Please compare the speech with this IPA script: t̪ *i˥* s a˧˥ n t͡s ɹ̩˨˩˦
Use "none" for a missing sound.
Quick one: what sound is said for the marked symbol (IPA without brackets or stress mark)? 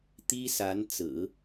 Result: i˥